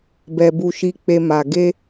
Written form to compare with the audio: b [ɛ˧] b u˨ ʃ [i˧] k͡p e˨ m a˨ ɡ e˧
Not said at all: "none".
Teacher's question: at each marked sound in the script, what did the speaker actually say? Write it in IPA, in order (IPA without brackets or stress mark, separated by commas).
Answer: ɛ˨, i˨